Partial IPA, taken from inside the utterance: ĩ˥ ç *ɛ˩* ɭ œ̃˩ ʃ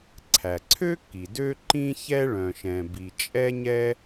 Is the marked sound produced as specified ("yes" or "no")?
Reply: no